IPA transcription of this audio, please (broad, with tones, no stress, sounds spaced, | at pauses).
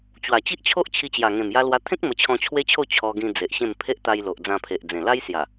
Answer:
t͡ɕ w a˨˩ t͡ɕ i˦ ʔ t͡ɕʰ o˦ ʔ t͡ɕʰ i˧ t͡ɕ j a˨˩ ŋ ẽ˨˩ m j a˧ l w a˧ t̪ʰ ẽ˦ k̚ m ə˧ t͡ɕʰ ɔ̃˧ t͡ɕʰ w e˦ t͡ɕʰ o˥˧ t͡ɕʰ ɔ˧ ɡ ĩ˧ d͡z e˨ ʔ ɕ ẽ˥˧ m pʰ e˦ ʔ t̪ a˧ j l o˨ ʔ d͡z ã˧ pʰ e˨ ʔ d͡z ẽ˨˩ l a˦ j s j a˨˩